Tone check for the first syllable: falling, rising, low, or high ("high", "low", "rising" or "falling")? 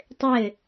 falling